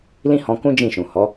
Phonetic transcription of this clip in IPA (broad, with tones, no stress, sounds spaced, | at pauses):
l ĩ˦ h ɔ̃˧ k ũ˦ d͡ʒ ĩ˦˨ ʃ ũ˨ h ɔ˨˦